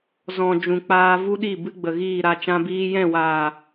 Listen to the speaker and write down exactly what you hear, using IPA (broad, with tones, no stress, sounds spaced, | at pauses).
z ɔ̃˨ d͡ʒ ũ˨ k͡p aː˧ v u˦ ɗ i˦˨ b ɨ˦ ɡ͡b ə˨ ɣ iː˦˨ ɾ a˧ t͡ʃ ã˧ b iː˧ j ɛ̃˦˨ w aː˨